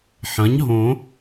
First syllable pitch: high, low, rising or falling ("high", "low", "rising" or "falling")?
rising